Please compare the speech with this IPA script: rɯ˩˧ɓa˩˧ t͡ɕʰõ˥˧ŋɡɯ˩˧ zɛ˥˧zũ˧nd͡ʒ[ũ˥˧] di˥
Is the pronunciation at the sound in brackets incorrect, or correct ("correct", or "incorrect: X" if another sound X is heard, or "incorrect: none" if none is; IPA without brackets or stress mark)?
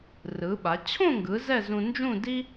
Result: correct